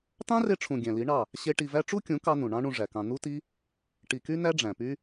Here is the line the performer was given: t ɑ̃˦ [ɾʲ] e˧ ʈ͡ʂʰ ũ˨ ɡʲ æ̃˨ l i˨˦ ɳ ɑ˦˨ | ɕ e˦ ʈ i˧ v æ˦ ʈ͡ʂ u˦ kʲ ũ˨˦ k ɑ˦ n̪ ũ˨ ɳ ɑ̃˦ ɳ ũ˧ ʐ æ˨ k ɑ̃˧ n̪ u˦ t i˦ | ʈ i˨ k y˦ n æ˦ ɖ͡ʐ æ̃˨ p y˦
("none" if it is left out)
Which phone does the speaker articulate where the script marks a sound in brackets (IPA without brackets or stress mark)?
r